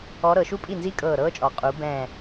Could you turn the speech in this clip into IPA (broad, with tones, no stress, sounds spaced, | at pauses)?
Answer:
ɔ˧˥ ɾ ɤ˩˧ ʃ u˥ pʼ i˥˩ n z i˥ kʼ ɤː˧˩ ɾ ɤː˥ t͡ʃʼ ɔ˩˧ qʼ u˩˧ b ɛ̃ː˧˩